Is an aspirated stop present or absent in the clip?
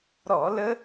absent